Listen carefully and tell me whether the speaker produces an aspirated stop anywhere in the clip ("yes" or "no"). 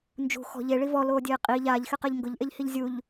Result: no